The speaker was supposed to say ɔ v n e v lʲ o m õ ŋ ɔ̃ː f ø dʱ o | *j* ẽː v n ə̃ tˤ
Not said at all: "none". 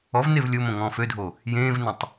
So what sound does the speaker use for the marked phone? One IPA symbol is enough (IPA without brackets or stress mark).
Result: j